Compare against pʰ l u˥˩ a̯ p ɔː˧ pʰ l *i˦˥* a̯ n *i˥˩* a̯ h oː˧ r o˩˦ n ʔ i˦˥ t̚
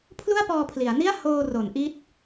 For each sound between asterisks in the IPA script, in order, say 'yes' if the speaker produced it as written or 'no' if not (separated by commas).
no, yes